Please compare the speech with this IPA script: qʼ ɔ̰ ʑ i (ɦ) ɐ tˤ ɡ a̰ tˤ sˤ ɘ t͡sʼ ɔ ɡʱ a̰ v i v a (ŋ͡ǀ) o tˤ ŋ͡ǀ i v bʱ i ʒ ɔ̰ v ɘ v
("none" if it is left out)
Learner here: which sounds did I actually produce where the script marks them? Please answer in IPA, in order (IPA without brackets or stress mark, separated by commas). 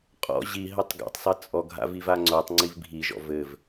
ɦ, ŋ͡ǀ